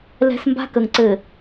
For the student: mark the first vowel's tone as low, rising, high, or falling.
high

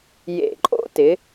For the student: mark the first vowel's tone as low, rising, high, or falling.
low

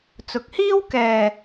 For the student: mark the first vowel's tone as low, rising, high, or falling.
low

